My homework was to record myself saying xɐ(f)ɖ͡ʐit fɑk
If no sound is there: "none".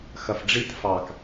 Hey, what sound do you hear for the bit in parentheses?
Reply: f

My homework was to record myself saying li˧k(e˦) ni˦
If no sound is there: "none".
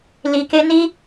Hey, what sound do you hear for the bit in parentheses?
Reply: e˦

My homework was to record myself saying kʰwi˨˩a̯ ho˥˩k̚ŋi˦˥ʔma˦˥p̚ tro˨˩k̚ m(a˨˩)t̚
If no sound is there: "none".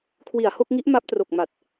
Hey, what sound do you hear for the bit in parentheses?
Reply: a˨˩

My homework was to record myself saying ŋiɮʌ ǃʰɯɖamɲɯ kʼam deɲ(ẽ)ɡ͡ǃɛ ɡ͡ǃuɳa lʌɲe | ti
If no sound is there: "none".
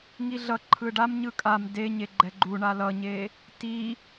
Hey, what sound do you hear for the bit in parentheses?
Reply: e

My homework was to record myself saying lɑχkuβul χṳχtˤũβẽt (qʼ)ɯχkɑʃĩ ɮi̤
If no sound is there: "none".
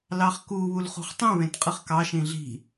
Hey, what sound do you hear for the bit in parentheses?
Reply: qʼ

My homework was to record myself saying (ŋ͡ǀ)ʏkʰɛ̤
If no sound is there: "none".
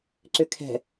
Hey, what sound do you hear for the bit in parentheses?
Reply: ǀ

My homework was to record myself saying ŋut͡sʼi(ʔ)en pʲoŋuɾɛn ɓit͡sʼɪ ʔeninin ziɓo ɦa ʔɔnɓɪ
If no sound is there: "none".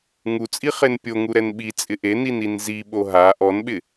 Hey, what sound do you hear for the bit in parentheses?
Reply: χ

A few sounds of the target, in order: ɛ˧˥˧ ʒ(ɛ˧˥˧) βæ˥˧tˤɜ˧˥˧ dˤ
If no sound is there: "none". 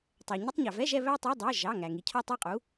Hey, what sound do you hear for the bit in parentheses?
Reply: ɛ˥˧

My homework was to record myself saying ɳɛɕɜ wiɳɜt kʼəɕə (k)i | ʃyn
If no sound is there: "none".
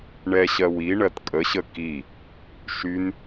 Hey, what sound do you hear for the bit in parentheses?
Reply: k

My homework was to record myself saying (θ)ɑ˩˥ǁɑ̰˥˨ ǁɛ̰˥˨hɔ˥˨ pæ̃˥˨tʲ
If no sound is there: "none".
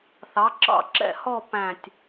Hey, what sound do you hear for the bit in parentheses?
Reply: θ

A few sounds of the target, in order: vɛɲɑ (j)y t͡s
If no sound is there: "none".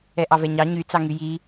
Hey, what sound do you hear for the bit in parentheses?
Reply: ɲ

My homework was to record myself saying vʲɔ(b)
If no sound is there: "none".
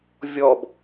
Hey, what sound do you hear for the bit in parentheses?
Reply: b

